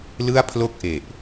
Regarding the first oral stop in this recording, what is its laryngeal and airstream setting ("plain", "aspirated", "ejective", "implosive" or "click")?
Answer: aspirated